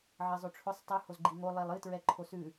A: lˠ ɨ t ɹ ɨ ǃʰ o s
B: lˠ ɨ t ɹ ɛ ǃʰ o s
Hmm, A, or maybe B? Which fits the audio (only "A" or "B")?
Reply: B